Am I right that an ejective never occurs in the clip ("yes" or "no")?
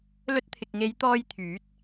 yes